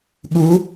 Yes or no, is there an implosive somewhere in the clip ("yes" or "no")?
yes